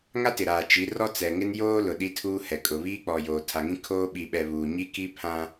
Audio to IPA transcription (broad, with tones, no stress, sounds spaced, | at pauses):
ŋ a˦ t ɪ˨ ɾ a˨ t͡ʃ i˨˦ r ɔ˦ t͡s ɛ˨ ŋ ɪ˦ n j oː˦ l ʊ˨ ɗ i˦ tʰ uː˦ h ɛ˨ kʼ ʊ˨ β iː˦ k͡p ɔ˨ j oː˨ tʰ a˨ ŋ ĩ˦ kʰ oː˦ ɓ i˨ ɓ ɛ˨ β uː˨ ɲ i˦ k i˦ pʰ ã˦